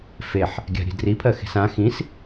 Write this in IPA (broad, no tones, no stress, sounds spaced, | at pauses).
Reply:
f e ħ | ɡʲ a̤ ɾʲ e̤ d r i pʰ ɜ x e̤ s ã x ĩ s